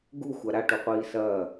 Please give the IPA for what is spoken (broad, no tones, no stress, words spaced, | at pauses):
ɡuxʷa ɾaʈuqʷiː sɐː